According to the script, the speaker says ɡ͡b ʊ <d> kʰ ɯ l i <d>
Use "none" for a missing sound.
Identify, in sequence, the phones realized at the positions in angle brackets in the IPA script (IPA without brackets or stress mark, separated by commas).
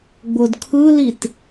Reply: d, t